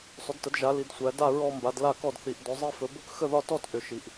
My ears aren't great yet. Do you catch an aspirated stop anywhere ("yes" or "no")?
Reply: no